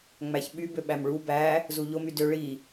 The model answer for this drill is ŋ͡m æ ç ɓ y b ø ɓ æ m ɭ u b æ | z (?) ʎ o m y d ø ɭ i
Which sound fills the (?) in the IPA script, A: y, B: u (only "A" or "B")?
B